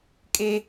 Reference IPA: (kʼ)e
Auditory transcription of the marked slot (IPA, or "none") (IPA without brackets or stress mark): kʼ